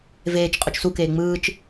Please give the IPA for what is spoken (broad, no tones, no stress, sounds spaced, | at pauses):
v eː t͡ʃ qʼ o t͡ʃ s u k eː ŋ͡m ɯː t͡ʃ